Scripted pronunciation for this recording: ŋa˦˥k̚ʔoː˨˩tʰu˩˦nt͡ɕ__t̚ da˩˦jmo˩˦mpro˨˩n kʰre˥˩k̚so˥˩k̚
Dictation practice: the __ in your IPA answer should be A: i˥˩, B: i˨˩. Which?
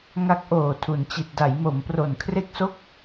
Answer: B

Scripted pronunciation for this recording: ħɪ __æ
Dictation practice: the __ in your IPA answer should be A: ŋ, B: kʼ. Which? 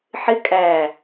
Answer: B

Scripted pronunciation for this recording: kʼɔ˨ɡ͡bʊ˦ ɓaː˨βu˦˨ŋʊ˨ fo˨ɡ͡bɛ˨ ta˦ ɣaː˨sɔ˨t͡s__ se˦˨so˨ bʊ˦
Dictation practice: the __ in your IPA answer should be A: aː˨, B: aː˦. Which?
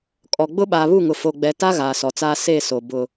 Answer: B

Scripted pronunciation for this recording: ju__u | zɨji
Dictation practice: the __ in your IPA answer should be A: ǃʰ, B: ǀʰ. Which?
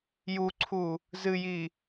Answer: B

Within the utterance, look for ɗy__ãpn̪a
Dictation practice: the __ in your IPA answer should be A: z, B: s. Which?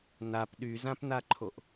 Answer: A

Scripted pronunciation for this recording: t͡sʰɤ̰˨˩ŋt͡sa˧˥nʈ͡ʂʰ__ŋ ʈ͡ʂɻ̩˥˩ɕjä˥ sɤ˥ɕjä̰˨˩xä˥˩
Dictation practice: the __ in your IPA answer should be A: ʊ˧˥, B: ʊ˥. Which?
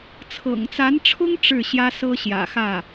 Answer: B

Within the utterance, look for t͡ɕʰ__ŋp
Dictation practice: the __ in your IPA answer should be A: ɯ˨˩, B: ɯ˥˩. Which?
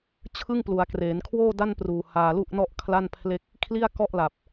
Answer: B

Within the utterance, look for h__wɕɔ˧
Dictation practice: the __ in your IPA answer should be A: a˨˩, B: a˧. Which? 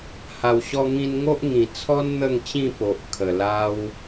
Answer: A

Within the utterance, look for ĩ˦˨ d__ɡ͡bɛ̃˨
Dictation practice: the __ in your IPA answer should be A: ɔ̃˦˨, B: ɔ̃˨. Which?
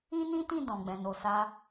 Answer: B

